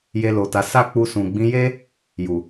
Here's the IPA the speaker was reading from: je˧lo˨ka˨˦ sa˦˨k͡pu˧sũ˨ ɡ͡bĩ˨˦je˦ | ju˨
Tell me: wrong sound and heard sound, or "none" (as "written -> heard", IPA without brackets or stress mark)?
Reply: k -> t